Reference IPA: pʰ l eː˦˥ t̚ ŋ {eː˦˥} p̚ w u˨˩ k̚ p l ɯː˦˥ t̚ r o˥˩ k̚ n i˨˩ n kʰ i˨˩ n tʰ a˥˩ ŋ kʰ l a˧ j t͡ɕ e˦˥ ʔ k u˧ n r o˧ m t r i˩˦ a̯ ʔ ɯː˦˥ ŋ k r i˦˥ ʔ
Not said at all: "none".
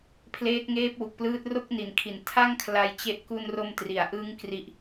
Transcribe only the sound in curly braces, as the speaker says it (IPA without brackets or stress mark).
eː˦˥